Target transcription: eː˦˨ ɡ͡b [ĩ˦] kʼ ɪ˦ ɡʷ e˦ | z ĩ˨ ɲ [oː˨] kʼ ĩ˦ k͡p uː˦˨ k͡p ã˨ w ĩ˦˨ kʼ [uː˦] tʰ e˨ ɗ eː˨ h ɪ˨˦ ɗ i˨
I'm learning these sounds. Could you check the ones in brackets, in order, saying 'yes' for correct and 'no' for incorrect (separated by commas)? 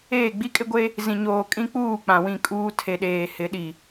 no, yes, yes